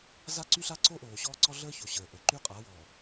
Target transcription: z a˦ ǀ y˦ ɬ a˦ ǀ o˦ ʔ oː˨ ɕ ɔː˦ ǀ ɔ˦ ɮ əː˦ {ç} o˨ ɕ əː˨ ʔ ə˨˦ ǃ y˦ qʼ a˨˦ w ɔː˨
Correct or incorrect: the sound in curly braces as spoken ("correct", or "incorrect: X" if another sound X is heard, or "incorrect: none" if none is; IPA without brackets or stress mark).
correct